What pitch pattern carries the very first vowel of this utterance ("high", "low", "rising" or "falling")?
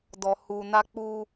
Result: low